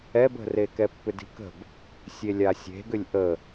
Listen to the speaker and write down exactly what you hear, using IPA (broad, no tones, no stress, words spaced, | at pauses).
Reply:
ɛbə̤re kɛpːʏdi̤kə̤b | sʲelʲasʲe̤ɡʏlʲ ʔə